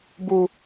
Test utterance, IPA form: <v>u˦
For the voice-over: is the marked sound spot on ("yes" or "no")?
no